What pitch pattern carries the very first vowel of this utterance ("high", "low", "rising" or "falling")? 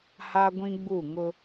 high